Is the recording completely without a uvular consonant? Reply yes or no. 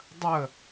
yes